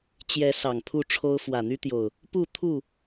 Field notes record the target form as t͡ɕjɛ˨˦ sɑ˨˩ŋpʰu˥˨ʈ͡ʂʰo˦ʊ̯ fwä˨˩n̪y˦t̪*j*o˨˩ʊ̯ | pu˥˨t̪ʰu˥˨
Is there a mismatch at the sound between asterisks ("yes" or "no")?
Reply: no